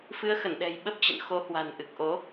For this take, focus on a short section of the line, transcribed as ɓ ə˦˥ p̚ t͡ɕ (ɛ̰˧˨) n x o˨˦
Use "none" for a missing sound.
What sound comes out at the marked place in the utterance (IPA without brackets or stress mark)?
ə̰˧˨